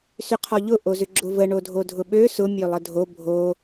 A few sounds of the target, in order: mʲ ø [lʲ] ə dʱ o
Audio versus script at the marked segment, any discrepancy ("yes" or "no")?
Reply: yes